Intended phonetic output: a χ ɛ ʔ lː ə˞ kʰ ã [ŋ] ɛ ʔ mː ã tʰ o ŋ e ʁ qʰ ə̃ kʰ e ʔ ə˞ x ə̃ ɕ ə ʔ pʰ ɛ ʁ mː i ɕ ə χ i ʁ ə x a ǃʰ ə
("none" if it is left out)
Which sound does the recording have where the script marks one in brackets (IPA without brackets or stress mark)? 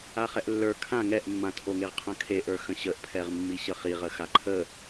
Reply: ŋ